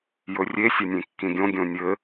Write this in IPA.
jɵrʲe sʲʌnʲẽkːĩɡʲõ ɡʲõnʲɘ

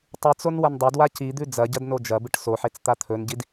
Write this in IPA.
tˤɨt͡son wɐndˤɐdwa cid̪ʉ d͡zɐɟɐd nod͡ʒɐbɨʈ soħet͡s t̪at̪ʰɵnɟid

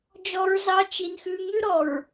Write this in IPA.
d͡ʒɔ˦ɹzɑ˦ t͡ʃi˦nxʉ˦ ŋʉ˦ɾɔ˨ɹ

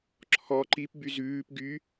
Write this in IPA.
ǁʰɔ ǃipby zʉːp ɡy

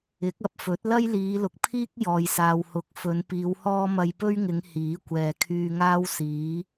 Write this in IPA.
ɪ˨˥k̚ɐ˧p̚fɵ˨˥t̚ lɐ˥jliː˨˧lʊ˨k̚pʰiː˥k̚ jɔː˨jsaː˨whʊ˨˥k̚fɵ˨˧n piː˨˧whɔː˥ mɐ˧jpɵ˥ɥŋɪ˨˧ŋ hiː˨˥kʷɛː˨ kʰyː˧ŋaː˥wsiː˨˥

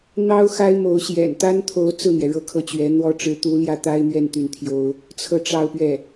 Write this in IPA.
n̪ɑ˥ʊ̯xa˥ɪ̯ mo˧˥ʊ̯ ɕjɛ̰˨˩nt̪a˥nt̪ʰo˧˥ʊ̯ t͡sɹ̩˥˩n̪jɛ˩ ɻɤ˥˧kʰɤ˥˩t͡ɕɥɛ˧˥n̪wɔ˥ ʈ͡ʂɻ̩˧˥t̪u˧˥ ljä˥˩t̪a˥ɪ̯mɥɛ˥˧n t̪y˥˩nt̪ʰjo˥ʊ̯ | t͡sʰɤ˥˧ ʈ͡ʂɑ˥˧ʊ̯pɥɛ˥˩

